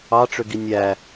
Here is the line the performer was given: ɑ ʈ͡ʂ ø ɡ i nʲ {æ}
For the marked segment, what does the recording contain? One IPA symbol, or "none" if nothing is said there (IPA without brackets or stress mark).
æ